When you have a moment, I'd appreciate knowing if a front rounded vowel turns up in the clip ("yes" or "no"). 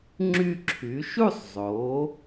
yes